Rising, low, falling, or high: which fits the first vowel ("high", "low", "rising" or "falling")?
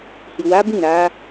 low